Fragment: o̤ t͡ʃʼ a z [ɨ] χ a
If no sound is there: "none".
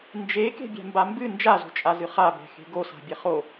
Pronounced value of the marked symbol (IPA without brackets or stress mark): ɨ